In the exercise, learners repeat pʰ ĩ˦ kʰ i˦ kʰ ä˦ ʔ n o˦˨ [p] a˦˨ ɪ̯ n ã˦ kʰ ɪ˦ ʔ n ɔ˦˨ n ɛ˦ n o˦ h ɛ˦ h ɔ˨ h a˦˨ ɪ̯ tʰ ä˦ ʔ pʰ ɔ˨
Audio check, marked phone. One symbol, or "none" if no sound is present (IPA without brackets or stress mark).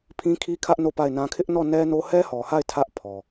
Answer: p